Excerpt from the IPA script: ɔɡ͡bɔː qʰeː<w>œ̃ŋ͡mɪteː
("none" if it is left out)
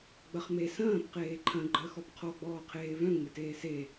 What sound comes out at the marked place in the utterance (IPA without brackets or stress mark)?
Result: v